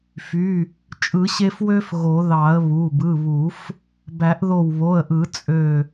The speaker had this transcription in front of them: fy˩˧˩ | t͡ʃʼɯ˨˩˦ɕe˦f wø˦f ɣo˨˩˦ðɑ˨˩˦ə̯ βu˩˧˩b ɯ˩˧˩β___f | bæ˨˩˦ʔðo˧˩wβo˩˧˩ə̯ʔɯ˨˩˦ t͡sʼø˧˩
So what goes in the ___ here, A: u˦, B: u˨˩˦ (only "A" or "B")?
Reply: B